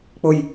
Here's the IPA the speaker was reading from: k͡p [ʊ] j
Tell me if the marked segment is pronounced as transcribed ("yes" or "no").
yes